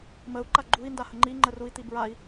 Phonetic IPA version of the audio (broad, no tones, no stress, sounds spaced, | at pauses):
m ə u̯ ǃ a ɡ͡ǃ u i̯ n d a h ə ŋ͡ǃ i ŋ͡ǃ ə r u i̯ t̪ i b ɹ a i̯